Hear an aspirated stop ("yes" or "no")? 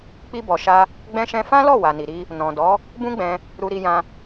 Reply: no